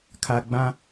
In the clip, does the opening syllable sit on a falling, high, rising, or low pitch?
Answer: high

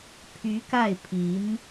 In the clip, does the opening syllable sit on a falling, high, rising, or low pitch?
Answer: rising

